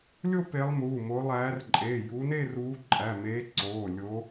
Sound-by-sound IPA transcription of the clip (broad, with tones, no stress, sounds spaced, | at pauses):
lʲ o˥˧ p e˨˦ lˠ m uː˩˧˩ m o˨˦ lˠ æː˨˦ r ǃʼ e˩˧˩ j u˨˦ n e˥˧ r uː˨˦ ǃʼ æ˩˧˩ m eː˨˦ ǀ oː˩˧˩ lʲ o˨˦